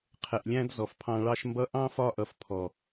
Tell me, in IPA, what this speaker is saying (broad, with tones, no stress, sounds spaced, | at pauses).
qʰ ɛ˨ ʔ lʲ æ̃˦ d z ɔ˨ f pʰ ɑ̃˧ ɭ ɑ˦ ʃ m b ʌ˦ ʔ ɑ̃˦ f ɒ˦˨ ʔ ʌ˧ f pʰ ɔ˨